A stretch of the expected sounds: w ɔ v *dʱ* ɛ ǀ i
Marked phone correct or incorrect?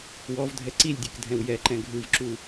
correct